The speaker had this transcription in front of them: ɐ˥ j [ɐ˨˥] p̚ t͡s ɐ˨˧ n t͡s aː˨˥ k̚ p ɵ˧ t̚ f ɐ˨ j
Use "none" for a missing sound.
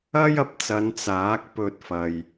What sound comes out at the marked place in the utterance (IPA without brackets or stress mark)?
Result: ɐ˧